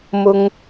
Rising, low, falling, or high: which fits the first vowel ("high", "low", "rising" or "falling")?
high